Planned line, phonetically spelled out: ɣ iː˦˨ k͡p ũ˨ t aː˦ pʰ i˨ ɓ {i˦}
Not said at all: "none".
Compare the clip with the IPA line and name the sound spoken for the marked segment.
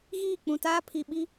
i˦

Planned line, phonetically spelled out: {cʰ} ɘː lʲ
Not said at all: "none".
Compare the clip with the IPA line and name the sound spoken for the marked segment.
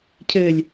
cʰ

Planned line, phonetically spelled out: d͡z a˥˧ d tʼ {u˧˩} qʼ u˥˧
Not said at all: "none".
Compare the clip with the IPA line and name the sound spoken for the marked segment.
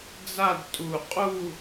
u˧˩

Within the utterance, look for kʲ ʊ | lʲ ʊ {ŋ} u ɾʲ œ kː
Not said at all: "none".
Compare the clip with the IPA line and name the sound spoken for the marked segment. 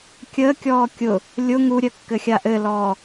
ŋ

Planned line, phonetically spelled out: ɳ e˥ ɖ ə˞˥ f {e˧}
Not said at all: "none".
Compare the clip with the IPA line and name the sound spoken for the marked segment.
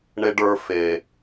e˧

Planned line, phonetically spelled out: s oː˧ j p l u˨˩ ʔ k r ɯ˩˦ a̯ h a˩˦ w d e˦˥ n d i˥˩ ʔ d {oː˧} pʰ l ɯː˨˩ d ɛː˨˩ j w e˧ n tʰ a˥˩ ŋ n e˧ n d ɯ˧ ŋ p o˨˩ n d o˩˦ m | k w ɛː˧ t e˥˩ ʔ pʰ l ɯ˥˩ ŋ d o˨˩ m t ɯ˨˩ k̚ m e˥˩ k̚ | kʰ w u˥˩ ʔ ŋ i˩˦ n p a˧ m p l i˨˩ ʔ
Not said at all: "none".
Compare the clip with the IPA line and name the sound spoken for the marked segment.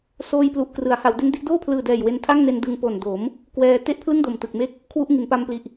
oː˥˩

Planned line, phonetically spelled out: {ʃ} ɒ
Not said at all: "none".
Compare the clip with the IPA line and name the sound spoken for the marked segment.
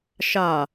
ʃ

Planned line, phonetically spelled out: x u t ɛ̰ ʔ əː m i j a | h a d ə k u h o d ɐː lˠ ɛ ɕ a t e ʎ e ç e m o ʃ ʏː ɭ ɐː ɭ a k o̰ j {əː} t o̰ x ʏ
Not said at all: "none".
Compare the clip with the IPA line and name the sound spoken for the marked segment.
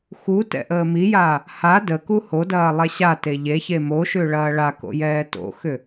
ɛː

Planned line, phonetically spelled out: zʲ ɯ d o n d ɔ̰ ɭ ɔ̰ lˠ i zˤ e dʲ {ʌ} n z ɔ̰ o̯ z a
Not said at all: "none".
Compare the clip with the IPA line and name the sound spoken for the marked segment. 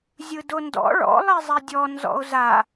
ɔ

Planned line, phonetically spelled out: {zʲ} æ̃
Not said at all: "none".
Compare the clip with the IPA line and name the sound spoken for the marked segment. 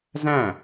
z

